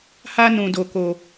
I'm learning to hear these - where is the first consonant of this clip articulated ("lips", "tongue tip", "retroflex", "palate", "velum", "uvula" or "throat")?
throat